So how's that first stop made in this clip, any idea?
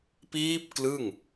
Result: plain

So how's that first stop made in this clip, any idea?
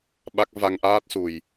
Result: implosive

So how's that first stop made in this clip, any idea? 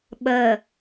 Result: implosive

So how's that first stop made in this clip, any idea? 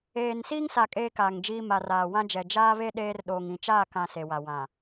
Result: ejective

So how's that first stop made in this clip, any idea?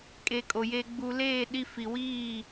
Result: ejective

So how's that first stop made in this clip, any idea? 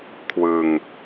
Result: aspirated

